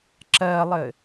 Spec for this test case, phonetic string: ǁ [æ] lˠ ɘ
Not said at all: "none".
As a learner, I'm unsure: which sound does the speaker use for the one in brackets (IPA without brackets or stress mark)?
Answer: ɜ